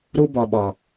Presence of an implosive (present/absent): present